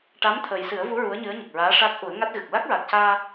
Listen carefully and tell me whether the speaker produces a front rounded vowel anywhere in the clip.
no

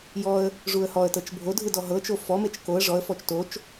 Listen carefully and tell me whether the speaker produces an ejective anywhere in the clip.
no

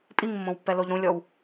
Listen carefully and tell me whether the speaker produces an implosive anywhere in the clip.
no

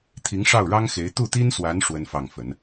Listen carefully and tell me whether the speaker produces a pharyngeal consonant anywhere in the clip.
no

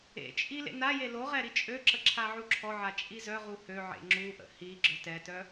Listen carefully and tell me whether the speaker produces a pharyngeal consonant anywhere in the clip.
yes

